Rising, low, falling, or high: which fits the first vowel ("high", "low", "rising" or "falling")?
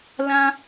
high